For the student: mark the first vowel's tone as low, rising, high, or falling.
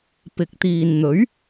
rising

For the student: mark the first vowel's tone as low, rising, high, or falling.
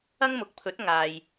high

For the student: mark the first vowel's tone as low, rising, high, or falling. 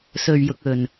low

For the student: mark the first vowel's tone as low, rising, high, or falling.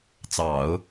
low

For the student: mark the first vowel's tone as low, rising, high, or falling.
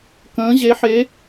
rising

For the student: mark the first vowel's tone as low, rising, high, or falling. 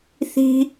high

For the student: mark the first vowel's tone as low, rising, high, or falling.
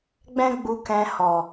high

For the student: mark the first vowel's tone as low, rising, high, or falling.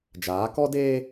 rising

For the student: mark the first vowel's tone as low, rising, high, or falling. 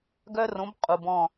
high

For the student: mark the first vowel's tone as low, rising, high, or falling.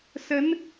rising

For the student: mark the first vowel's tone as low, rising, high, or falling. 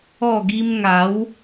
falling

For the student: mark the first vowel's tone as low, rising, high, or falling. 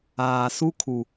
low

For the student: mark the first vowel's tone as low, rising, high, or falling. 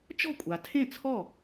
falling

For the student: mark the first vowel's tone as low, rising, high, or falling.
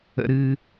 high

